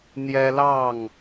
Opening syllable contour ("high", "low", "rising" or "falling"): high